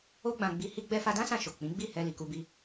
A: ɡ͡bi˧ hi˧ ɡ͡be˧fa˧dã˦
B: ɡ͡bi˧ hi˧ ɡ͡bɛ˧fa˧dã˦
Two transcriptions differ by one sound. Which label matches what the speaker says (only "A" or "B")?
B